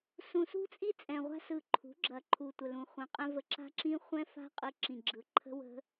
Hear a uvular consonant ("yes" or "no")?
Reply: yes